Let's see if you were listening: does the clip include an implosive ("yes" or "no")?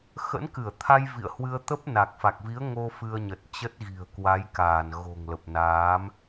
no